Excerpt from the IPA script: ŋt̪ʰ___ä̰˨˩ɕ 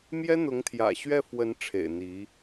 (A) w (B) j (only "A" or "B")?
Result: B